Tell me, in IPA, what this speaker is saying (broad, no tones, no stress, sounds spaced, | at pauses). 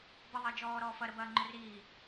b ə ðˤ əː d͡ʒ ɔː ɾ ɔː f ɐ ɾ ə b ɐː ŋ͡ǃ ʏ r iː